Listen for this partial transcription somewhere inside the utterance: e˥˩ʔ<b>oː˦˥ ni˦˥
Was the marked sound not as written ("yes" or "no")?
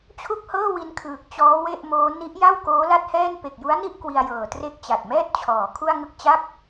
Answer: yes